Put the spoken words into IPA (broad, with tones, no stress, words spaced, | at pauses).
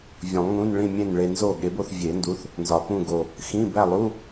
vʲũ˨˩˦lˠŋũ˧˥˧n ɭĩ˥˨mʲẽ˥˨nɭe˧nzo˥˨ ɠe˩˥bo˥˨θvʲe˨˩˦ndu˩˥θ | nzɒ˨˩pũ˥˨ɡo˨˩ | xĩ˧˥˧bæ˥˨lˠu˧˥˧